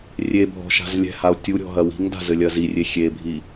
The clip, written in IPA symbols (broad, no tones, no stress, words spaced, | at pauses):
rʲe bʱɔ̤ʃa̤zlʲɛ̤hao̯ tʲuɾʲɔ̤ ɦɐwi̤ŋda̤ zɘlʲɐzirʲe xʲebʱi